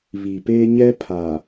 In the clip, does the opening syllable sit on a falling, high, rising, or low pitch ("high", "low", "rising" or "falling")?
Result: low